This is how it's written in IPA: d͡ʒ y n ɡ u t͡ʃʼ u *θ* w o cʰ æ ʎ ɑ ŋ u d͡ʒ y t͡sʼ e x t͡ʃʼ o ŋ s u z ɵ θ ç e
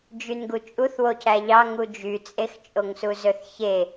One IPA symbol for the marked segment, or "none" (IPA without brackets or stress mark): θ